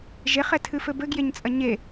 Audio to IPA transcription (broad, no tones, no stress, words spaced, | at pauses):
ʒeχɛtʰɨfɘ bɘɡjeɲt͡sʼɐ ɲe